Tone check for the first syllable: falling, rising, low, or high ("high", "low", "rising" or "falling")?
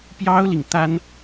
high